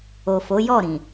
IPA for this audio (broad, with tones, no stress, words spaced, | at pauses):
o˨fo˨˦ jɔ˦˨ɾĩ˨